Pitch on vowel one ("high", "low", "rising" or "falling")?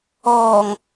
low